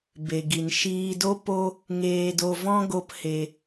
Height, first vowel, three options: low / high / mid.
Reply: mid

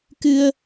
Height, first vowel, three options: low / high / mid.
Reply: high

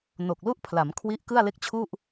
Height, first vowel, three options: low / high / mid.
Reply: mid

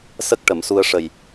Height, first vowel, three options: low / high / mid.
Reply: mid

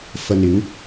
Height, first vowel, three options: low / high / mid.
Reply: low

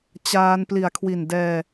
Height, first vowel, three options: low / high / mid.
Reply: low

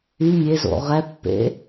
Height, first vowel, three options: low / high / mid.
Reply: high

